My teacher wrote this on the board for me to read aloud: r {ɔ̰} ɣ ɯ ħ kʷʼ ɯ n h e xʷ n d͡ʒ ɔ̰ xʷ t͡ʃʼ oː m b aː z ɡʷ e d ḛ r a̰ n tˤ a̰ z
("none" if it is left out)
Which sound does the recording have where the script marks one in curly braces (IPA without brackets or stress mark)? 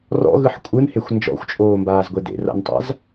ɔ̰